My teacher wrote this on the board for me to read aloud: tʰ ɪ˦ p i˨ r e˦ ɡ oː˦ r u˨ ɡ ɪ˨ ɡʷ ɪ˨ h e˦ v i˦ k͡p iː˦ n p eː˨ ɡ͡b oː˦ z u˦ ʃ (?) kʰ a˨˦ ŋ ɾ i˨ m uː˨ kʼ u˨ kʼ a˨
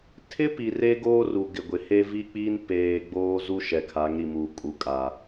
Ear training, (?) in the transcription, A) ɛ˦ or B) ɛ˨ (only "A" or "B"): B